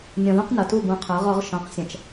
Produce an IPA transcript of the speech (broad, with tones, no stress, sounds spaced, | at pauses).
nʲ ɔ̃˨ ð ũ˦ q n ɐ˨ t u˦˨ b ũ˨ qʰ ə˞˨˦ ʁ ɔ˨˦ ʁ ʃ ɔ̃˨ q sʲ ɐ̃˨ t͡ʃ